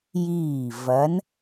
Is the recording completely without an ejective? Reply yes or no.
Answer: yes